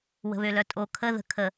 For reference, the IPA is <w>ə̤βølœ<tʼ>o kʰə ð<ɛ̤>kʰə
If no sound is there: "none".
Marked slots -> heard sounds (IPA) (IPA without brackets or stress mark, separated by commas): w, tʼ, ə̤